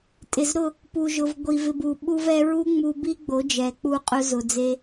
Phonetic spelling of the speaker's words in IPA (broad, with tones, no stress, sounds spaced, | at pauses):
tʼ ɪ˨ z ɾ ʊ˦˨ | p u˨ ʒ ʊ˨ v ɡʷ i˨ v ɪ˧ b u˨ ɓ u˧ v ɛ˧ ɹ u˦ ŋ͡m u˧ b i˦ ɡ͡b o˨˦ d͡ʒ ɛ˨ k͡p u˧ qʼ ʊ˧ z ʊ˨ d͡z e˧